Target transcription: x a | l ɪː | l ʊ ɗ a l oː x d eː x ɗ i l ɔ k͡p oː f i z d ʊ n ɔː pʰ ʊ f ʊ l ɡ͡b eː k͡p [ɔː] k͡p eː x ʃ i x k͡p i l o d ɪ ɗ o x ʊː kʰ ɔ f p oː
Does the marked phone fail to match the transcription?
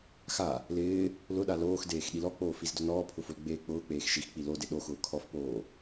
yes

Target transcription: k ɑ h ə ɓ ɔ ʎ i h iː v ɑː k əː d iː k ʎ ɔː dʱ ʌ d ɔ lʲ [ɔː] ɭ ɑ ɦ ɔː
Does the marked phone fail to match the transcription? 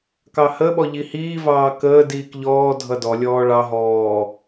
no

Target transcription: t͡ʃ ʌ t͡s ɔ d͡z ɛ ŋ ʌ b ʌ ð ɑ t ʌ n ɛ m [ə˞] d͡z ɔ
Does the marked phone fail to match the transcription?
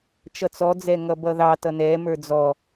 no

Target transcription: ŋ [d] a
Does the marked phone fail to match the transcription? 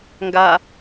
yes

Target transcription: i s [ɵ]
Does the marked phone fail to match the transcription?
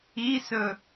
no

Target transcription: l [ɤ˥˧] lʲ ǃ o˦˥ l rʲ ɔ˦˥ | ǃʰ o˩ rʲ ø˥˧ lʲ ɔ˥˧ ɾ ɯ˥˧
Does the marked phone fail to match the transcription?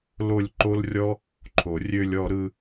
yes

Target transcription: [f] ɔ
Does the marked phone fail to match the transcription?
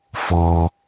no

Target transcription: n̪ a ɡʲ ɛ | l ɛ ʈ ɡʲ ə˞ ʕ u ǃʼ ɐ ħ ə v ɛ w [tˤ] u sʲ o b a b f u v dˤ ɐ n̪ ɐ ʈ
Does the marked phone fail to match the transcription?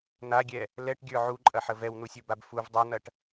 yes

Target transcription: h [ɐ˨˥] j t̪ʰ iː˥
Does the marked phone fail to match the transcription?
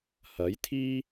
no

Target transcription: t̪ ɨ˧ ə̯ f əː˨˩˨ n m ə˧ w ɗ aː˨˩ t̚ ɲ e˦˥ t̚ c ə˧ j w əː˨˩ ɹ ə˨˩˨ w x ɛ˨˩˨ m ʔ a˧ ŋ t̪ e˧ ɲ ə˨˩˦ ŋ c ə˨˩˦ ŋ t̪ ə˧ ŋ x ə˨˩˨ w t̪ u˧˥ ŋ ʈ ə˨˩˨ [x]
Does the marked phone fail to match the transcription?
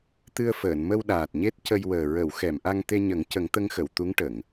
yes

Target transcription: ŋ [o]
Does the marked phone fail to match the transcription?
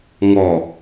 yes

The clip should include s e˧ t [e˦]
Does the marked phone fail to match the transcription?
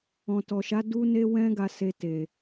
yes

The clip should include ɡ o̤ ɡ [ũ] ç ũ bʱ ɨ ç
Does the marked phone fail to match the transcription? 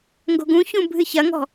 no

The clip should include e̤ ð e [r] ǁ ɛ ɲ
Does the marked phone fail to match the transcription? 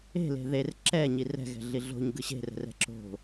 no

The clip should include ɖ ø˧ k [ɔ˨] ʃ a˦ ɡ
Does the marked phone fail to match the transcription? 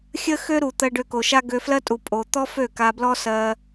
yes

